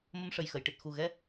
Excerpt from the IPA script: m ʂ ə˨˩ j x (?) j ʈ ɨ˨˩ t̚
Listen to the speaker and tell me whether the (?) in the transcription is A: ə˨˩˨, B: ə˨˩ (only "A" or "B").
A